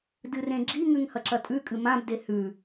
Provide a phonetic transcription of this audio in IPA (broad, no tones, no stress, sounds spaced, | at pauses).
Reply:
d ɨ r ẽ ɡ͡ǁ i ŋ ʉ ŋ h ɐ ǁ ɐ tʼ ʉ kʼ ɨ m ã b d e h ʉ